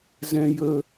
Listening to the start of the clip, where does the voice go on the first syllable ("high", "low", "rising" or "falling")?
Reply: low